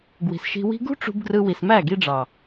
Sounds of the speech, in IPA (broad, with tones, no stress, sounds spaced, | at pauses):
ɡ w i̤˨ s ʃ i̤˧ w i̤˦ ɡ ṳ˦ ʈ͡ʂ ṳ˧ b ɡ r ɯ˧ w i˨ s m æ˦˨ ɡ i˧ ɖ͡ʐ ɑ˨